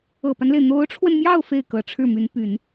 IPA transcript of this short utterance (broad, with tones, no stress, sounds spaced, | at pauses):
ɤ˨˩ p a˦ n l e˩ ɪ̯ n̪ o˧˥ ʊ̯ ʈ͡ʂʰ w ə˧ n m j ɑ˥˧ ʊ̯ f e˥˩ ɪ̯ k ɤ˨˩ ʈ͡ʂʰ ɻ̩˥˩ m y˧˥ n p y˨˩˦ n